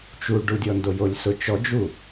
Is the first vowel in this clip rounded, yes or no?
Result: yes